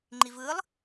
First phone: ŋ͡ǃ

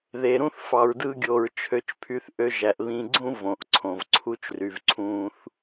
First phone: ð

